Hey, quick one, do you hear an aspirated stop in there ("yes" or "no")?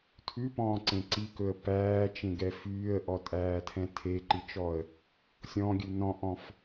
yes